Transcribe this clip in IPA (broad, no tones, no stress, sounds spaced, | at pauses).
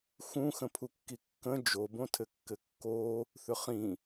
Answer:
x ũ x ə̃ pʰ u kː i kː ə̃ d͡ʒ o b õ tʰ ɘ kː ɘ kː o | θ ʏ χ ĩ